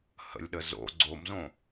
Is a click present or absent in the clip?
present